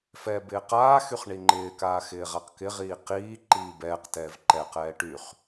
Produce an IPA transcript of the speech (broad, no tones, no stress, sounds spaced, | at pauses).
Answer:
f ɛː b ɪː q aː x y χ ɳ i ŋ͡ǃ ɪː k aː x ɪː ʁ a q k ɪ ʁ iː q iː ǃ iː b ɛː q t ɛː v ǃ ɛ q ɛː ʈ y χ